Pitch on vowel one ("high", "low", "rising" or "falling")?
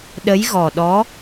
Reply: rising